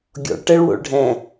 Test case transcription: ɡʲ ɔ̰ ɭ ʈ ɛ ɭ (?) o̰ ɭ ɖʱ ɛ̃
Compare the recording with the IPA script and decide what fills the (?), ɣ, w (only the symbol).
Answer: w